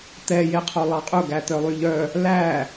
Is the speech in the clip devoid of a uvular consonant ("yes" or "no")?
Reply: no